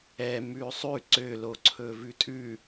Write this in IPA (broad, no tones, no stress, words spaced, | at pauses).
ɛ mʉsˤʉ ǀøloǀʰɵ vʉtʼʉ